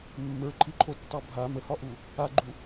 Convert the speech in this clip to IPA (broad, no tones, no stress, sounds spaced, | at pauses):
mː ə˞ ǃʰ i ǃʰ o tː ɑ bʱ a m ə h ɒ ʔ u | a ɡ͡ǃ u